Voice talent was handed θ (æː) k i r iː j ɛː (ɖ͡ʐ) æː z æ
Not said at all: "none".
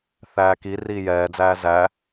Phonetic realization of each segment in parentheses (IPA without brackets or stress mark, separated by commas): æː, d͡z